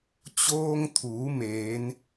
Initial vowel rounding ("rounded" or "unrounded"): rounded